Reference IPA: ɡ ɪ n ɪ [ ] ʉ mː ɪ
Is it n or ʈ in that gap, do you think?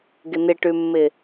ʈ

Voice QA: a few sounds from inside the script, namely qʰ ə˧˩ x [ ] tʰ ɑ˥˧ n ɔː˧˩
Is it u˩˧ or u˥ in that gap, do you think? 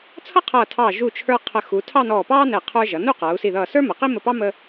u˩˧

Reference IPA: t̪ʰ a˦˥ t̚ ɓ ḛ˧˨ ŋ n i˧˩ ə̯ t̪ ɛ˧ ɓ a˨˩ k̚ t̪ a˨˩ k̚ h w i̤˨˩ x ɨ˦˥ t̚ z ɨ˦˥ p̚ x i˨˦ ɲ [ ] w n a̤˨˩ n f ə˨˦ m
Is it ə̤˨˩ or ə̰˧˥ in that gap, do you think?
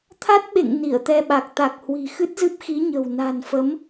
ə̤˨˩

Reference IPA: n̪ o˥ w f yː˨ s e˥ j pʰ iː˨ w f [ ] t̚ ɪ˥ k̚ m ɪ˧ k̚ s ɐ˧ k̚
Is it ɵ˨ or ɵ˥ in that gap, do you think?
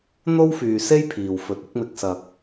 ɵ˨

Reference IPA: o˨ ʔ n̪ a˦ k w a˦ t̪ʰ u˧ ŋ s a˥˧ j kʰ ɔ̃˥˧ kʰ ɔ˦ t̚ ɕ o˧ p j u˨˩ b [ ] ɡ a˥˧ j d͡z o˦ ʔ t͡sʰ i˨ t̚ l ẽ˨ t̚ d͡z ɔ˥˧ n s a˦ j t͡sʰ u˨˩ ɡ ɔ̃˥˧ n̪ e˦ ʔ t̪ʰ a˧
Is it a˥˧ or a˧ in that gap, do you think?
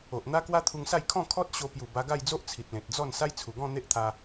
a˧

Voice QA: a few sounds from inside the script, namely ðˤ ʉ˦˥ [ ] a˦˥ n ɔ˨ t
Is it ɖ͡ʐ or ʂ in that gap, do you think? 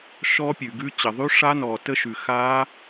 ʂ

